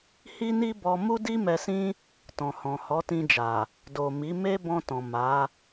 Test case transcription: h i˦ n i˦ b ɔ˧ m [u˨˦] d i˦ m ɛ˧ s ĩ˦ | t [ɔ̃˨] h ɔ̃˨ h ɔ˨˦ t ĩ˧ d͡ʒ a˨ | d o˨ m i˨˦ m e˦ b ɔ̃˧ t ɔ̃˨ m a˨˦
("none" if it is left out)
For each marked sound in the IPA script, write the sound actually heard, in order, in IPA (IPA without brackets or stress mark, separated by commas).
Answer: u˦, ɔ̃˨